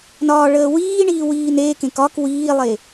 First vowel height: low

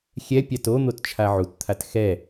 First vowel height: mid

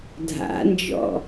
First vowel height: low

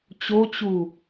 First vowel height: mid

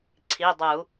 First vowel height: high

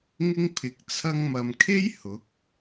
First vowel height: high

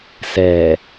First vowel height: mid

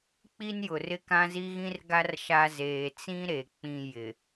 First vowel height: high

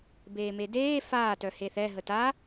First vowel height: mid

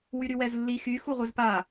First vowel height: high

